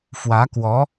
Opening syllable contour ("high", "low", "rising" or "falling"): rising